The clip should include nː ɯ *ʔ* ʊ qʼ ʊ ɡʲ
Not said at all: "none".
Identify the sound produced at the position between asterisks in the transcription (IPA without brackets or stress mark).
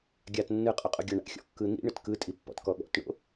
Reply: qʼ